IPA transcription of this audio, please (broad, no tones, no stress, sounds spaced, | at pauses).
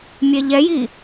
mʲ ɛ ʎ ɛ j i